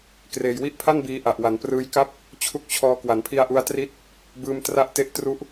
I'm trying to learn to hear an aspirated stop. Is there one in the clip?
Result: yes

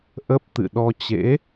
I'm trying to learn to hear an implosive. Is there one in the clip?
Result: yes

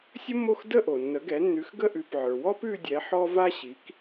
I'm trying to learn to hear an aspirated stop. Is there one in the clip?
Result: no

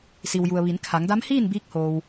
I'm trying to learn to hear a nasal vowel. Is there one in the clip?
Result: no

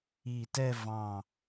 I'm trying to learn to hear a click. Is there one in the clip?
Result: no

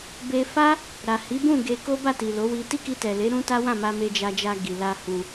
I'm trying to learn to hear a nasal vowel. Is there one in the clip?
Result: yes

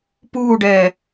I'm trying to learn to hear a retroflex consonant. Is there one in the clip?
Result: yes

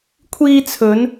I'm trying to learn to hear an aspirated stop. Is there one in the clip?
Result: yes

